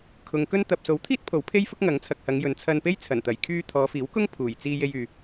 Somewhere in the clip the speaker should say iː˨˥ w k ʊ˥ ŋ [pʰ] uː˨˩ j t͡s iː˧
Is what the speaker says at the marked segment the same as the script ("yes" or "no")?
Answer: yes